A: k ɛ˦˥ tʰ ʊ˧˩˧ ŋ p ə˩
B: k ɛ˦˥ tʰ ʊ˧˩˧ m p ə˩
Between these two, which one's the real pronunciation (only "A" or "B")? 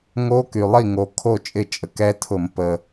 B